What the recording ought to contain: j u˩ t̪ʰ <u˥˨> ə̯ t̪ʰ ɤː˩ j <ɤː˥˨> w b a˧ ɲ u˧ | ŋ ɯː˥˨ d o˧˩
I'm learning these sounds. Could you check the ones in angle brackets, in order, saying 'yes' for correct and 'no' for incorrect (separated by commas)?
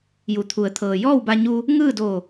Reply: no, no